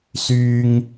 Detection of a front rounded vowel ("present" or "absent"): present